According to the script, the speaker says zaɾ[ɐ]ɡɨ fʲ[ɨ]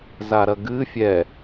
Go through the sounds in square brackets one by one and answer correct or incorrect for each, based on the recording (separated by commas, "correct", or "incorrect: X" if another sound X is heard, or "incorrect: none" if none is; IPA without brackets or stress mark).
correct, incorrect: ɛ